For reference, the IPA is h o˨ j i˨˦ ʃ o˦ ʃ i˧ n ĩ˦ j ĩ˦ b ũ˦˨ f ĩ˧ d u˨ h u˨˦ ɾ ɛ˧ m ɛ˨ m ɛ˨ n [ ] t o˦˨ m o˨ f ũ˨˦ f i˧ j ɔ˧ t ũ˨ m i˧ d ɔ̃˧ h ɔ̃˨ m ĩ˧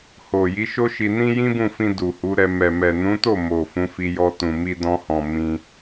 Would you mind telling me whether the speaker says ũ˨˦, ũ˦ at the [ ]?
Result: ũ˨˦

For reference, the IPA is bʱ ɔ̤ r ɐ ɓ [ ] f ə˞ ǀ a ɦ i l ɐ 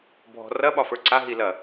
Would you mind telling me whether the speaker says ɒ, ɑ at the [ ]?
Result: ɒ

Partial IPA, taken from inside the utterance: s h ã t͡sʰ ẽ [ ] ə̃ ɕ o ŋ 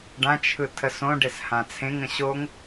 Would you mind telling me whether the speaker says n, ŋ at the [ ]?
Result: ŋ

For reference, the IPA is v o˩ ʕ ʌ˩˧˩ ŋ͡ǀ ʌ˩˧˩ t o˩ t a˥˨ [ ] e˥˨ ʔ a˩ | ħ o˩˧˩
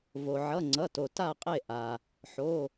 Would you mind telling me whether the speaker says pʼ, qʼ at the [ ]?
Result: qʼ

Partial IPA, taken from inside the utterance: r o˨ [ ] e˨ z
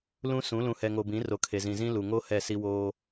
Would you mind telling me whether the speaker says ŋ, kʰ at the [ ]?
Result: kʰ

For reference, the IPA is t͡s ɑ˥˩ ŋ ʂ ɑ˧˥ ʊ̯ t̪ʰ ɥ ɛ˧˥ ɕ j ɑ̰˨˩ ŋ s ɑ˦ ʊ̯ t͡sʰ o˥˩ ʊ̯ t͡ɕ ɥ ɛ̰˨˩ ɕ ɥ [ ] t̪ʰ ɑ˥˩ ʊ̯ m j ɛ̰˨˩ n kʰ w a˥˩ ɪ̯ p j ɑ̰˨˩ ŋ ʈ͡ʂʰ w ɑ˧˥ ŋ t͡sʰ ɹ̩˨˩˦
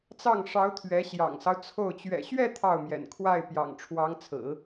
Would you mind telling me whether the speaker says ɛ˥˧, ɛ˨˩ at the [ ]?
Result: ɛ˥˧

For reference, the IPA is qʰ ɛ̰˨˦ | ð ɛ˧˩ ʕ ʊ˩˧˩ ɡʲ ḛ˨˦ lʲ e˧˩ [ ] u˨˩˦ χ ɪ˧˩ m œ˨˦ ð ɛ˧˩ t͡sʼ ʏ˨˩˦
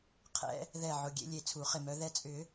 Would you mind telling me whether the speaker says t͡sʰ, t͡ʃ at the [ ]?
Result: t͡sʰ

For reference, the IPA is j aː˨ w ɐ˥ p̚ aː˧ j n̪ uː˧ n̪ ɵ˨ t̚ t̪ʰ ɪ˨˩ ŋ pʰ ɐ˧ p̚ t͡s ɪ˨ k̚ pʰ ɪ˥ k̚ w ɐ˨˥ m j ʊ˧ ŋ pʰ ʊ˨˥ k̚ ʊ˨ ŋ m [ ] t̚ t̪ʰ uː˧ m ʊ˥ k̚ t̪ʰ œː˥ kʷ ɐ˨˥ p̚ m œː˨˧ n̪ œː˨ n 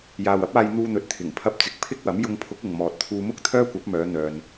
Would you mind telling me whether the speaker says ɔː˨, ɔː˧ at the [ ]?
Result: ɔː˨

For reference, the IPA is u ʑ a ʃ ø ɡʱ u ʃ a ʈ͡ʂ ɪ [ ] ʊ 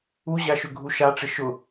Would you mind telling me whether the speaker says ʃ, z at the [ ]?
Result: ʃ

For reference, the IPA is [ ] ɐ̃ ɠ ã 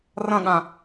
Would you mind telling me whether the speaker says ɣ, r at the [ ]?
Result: r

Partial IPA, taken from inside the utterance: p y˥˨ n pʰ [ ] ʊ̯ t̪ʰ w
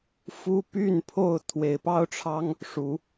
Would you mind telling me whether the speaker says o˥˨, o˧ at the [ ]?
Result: o˥˨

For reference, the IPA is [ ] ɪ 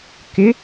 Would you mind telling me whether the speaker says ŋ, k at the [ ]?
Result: k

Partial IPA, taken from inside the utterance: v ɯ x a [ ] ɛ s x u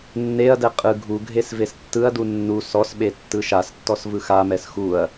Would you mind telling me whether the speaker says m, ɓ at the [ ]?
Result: m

